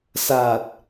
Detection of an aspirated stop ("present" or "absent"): absent